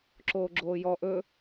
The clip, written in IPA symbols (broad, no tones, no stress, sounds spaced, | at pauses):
ǁ oː ɡ͡ǁ oː j ɔ ʔ ɵ